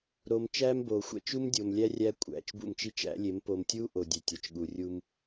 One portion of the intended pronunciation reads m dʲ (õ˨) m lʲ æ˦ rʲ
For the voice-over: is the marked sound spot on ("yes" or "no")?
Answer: no